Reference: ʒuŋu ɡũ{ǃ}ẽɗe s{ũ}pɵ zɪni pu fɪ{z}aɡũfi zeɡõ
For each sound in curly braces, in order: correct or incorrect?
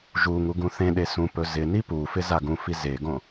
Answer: incorrect, correct, correct

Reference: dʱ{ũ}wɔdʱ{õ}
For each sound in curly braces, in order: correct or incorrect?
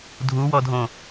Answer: incorrect, correct

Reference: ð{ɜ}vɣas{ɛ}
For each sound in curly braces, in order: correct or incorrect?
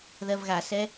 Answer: correct, correct

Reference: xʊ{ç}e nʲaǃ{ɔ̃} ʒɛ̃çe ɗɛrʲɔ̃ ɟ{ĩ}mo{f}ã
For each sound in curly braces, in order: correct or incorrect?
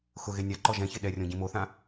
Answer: incorrect, incorrect, correct, incorrect

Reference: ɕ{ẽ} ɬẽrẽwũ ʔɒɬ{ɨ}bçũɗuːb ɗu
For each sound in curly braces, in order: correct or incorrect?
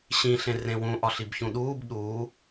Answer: incorrect, incorrect

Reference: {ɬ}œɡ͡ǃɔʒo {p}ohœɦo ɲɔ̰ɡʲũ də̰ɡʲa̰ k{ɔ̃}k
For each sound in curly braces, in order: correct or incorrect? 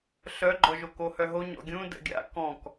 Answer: correct, incorrect, correct

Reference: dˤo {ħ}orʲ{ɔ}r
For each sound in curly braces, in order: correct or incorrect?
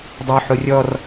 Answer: correct, correct

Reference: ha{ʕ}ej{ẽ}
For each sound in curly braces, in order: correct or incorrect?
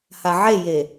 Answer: correct, incorrect

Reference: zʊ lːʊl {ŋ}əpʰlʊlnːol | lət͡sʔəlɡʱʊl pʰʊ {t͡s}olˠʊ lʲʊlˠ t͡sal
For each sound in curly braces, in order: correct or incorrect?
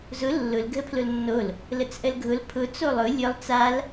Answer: incorrect, correct

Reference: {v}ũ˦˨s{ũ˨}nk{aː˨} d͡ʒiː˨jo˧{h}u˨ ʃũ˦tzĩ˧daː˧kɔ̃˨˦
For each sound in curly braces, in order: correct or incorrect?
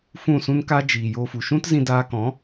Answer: incorrect, incorrect, incorrect, incorrect

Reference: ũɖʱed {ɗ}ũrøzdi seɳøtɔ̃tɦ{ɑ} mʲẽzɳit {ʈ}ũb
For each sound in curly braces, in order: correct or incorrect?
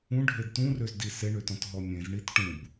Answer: incorrect, incorrect, correct

